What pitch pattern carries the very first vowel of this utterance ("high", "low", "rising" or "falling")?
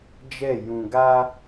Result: falling